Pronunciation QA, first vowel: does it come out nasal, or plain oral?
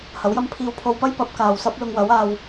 oral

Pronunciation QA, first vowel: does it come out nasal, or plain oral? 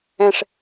nasal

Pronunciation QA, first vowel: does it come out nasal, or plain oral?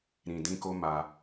nasal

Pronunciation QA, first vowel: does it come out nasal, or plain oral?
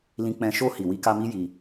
nasal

